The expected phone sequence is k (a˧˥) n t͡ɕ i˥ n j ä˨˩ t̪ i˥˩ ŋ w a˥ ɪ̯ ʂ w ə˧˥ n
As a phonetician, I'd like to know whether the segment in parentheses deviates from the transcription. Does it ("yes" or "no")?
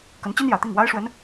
yes